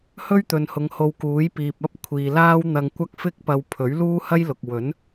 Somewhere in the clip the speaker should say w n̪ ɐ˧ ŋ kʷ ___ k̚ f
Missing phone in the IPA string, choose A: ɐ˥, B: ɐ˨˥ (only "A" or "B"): A